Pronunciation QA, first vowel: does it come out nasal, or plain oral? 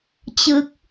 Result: oral